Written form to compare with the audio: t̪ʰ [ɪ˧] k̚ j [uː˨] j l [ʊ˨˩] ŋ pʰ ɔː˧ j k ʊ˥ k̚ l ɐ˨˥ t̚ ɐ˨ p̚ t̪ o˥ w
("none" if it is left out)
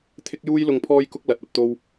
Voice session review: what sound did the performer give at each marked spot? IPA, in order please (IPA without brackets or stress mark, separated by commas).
ɪ˧, uː˧, ʊ˨